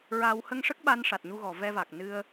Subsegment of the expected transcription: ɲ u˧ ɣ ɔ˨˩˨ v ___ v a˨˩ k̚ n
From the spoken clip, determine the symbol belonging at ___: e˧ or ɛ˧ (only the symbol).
ɛ˧